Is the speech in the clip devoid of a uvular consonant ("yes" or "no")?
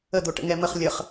no